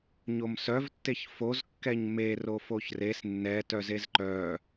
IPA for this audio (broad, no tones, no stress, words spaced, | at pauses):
ɲomsœvtːeç fozkːɛɲ me rofoçres nːɛ tœzezǃœ